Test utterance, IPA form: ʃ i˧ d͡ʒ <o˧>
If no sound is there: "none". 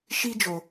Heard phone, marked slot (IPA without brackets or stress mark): o˧